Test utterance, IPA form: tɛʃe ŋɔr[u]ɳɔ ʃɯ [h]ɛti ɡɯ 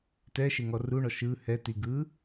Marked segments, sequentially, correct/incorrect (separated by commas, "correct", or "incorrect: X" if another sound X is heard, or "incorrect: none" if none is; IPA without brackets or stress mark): correct, correct